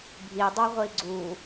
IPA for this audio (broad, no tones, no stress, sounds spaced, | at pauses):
bʱ i dˤ o ʁʷ i ɡ͡ǀ u